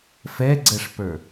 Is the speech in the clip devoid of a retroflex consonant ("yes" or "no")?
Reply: no